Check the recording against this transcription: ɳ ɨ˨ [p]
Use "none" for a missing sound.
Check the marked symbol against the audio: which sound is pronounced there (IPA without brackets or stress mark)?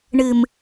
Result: m